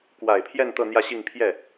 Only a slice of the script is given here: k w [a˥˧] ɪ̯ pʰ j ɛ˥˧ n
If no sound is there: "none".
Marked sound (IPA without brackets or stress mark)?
a˨˩